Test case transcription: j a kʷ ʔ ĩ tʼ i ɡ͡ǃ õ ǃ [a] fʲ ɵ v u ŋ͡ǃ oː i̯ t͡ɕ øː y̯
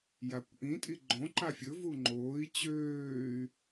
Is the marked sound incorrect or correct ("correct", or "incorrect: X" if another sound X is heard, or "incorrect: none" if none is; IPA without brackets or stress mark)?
correct